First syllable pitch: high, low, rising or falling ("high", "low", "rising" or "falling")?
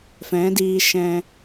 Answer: rising